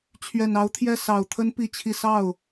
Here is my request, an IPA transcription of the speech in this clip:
t͡ɕʰ ɥ ɛ˨˩ n ɑ˧˥ ʊ̯ t̪ʰ j ɛ˥˩ s ɑ˨˩ ʊ̯ t̪ʰ ə˥ n p i˥˧ t͡ɕʰ i˥˧ s ɑ˥˩ ʊ̯

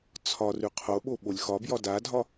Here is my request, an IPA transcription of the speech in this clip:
t͡sʰ ɒ r ʉ qʰ o ɓ o ɓ o lʲ x ɒ b j ɒ d a dʱ ɒ

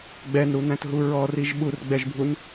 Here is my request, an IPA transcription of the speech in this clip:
ɡ͡b ɛ n ɾ u n æ̃ t ɦ u ɹ ɔ r i ʒ ɓ u r ɡ͡b ɛ ʒ bʱ u n

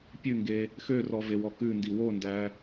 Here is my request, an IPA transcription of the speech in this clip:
pʲ ʉ ŋ ɡ e | x ø r ɔ v e w ɔ k ʉ n d i w o n d æ

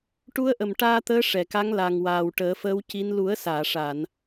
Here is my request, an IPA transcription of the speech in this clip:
ʈ u˧˥ ə̯ ʔ ə˨˩ m ʈ aː˧ t̪ əː˧˥ ʂ ɛ˨˩˨ k a˧˥ ŋ l a˨˩ ŋ w aː˨˩ w ʈ əː˨˩˦ f əː˧˥ w c i˧˥ n l u˨˩˦ ə̯ s aː˨˩˨ ʂ a˨˩˨ n

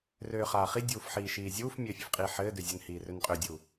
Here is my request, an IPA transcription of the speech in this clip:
r øː χ aː χ i dʲ uː f ħ iː ʃ iː zʲ uː f mʲ ɘː fʲ ø f qʼ iː ħ ɘː d ø zʲ ɘ n h iː r ø n qʼ ø dʲ u

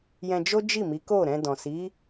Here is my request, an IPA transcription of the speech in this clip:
j ɛ̃˧ d͡ʒ o˦ d͡ʒ i˦˨ m i˨˦ k o˦˨ ɾ ɛ̃˧ d ɔ̃˨ s i˨˦

